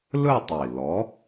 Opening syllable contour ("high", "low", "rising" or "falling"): falling